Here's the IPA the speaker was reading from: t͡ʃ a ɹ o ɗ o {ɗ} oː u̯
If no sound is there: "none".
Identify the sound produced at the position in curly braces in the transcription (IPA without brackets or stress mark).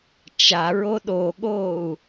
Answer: ɠ